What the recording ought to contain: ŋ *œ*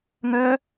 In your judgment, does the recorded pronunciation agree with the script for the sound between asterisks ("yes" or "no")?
yes